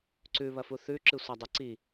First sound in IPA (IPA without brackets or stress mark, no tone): ǀ